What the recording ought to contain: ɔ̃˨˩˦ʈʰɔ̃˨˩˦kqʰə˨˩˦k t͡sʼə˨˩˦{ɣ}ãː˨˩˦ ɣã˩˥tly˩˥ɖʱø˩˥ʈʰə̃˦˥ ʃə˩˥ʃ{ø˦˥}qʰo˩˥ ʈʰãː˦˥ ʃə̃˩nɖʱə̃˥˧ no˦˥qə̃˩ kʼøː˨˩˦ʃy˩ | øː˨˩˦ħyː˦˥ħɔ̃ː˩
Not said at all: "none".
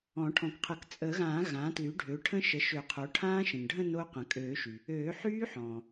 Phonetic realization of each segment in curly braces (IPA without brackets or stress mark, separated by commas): ɣ, ø˨˩˦